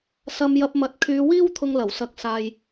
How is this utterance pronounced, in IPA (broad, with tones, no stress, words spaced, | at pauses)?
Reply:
sɐ˧m jɐ˧p̚mɐ˨˥t̚ kʰyː˨˧wiː˥w t̪ʰʊ˧ŋlɐ˨˩wsɐ˨˥k̚saː˨j